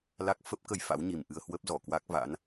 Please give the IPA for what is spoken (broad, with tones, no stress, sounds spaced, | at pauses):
l a˦˥ k̚ f ə˦˥ p̚ k ə˧ j f a̰˧˥ w ɲ i˨˩ m ʔ ɨ˧ ə̯ h w ə˦˥ p̚ z ɔ˧˩ k w a˦˥ k̚ v a̰˧˥ n